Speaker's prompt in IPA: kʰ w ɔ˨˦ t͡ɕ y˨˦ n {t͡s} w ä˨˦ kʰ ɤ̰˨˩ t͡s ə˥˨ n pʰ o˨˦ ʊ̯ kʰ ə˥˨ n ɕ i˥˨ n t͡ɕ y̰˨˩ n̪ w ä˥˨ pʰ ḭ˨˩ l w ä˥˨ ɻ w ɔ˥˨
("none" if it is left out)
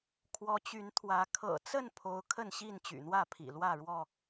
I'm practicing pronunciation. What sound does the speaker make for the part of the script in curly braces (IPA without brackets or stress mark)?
t̪ʰ